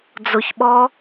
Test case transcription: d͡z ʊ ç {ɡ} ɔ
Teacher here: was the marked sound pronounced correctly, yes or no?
no